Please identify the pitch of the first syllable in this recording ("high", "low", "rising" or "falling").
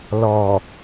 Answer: low